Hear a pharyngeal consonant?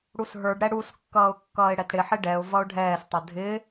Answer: yes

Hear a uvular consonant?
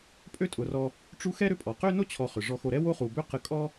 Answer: yes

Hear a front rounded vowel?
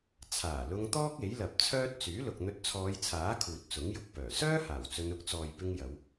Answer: yes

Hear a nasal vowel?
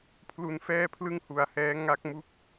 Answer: no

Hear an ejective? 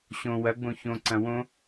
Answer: no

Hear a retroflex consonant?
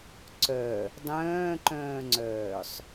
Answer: no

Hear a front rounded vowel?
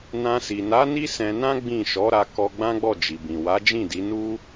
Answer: no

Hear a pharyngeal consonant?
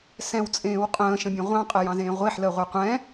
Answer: yes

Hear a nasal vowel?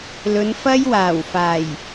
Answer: no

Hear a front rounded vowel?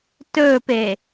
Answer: no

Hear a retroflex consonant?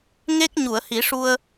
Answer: yes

